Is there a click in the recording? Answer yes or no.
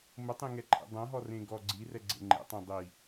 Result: yes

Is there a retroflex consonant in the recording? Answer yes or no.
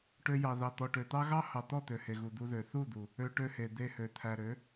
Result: yes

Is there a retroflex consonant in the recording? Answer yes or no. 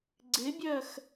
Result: no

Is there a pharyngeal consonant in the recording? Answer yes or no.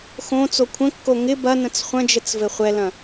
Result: no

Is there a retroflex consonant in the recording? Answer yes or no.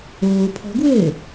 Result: no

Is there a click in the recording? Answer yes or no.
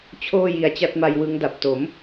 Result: no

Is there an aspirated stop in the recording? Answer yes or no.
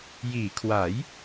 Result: yes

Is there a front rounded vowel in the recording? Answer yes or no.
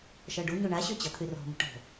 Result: yes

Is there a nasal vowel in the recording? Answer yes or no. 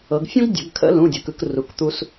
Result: yes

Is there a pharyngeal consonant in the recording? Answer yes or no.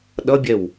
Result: no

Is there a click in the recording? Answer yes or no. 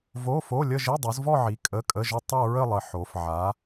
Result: no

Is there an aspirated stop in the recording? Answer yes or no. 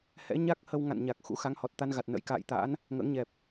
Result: no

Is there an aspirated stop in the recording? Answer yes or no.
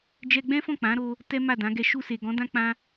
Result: no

